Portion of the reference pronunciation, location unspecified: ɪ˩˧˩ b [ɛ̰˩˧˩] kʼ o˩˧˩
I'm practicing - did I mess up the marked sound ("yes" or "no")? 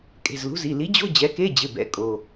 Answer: yes